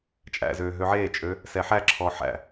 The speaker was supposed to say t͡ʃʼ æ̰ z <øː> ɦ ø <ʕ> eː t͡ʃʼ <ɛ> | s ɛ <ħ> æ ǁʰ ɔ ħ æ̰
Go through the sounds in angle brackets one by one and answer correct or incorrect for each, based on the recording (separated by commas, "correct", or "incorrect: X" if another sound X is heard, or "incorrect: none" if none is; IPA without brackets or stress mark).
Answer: correct, correct, incorrect: ø, correct